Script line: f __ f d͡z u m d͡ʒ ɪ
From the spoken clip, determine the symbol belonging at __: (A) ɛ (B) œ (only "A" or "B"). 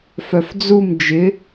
B